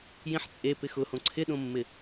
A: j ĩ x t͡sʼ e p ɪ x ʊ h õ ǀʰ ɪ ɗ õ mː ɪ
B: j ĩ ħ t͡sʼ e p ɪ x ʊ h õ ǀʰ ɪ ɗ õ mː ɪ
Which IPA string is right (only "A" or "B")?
B